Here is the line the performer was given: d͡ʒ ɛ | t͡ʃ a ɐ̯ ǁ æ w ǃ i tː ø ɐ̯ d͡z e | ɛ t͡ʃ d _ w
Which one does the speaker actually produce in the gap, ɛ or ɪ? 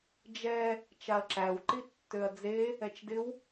ɪ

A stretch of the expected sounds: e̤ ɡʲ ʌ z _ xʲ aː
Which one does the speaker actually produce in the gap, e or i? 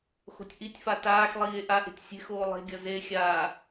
e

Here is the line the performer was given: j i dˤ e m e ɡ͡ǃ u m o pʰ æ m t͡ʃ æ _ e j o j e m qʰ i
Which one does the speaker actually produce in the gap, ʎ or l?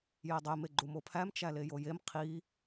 l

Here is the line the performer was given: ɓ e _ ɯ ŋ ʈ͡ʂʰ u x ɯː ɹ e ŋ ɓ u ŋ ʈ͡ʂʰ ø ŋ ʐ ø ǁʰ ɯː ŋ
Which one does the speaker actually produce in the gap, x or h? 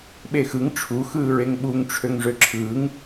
x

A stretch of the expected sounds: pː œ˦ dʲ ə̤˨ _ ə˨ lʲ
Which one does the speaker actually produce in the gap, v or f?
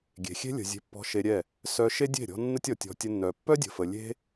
f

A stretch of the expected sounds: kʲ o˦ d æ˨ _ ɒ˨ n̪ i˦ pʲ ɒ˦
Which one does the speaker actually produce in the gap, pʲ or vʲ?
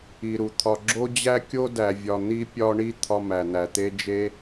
vʲ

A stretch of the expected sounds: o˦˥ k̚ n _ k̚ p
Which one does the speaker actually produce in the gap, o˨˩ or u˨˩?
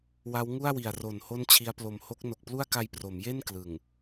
o˨˩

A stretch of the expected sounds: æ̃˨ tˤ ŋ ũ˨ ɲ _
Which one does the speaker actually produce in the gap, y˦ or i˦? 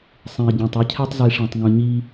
i˦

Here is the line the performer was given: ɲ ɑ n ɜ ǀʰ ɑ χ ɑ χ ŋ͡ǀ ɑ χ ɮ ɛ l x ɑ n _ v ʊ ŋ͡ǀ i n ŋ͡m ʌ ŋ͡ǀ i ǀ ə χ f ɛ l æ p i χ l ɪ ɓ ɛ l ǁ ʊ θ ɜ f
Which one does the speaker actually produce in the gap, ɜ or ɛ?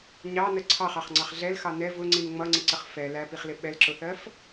ɛ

